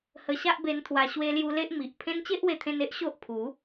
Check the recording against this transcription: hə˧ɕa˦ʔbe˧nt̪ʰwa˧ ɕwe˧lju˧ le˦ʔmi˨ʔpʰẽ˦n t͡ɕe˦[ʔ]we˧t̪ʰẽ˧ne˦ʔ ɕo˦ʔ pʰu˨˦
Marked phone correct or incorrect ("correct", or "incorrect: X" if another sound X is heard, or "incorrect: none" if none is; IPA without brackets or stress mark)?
correct